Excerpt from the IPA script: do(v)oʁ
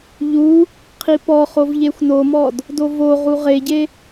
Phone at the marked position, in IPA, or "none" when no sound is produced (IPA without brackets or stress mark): v